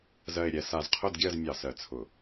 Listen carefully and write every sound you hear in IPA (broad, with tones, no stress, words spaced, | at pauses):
zɜ˨˩e̯ɾʲɛ˨˩ sa˧˩˧zqʰʊ˥˨dɡʲɜ˥˨z mʲɑ˧˩˧sɜ˨˩t͡sʰʊ˧˩˧